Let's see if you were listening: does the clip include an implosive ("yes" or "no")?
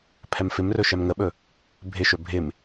yes